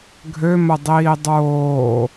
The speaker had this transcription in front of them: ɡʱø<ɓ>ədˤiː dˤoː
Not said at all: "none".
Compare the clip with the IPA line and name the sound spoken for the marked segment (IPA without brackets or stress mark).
m